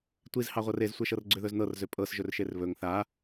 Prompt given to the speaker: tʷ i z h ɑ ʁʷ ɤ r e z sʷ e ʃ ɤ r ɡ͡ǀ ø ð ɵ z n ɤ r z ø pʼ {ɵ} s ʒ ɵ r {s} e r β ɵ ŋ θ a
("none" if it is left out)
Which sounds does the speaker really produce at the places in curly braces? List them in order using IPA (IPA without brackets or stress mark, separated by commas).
ɤ, ʃ